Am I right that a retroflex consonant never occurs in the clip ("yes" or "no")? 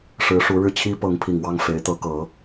no